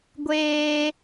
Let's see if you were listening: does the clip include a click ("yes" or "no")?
no